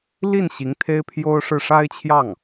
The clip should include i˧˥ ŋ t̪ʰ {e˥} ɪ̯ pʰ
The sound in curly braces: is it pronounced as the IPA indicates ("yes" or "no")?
yes